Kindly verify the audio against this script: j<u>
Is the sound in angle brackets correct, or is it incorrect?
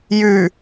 incorrect